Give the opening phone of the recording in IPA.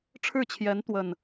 ʈ͡ʂʰ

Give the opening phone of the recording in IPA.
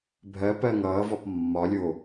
bʱ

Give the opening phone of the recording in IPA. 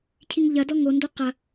cʰ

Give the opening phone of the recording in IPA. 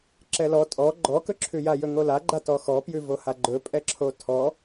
ǁ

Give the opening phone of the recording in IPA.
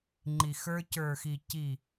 ŋ͡ǃ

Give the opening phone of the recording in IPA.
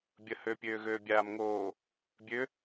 bʲ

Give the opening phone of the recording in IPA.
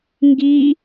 ŋ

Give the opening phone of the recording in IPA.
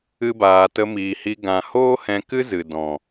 ɨ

